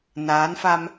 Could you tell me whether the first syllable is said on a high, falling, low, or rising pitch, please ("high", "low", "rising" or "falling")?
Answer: rising